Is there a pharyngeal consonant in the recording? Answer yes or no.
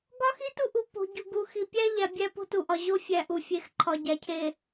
no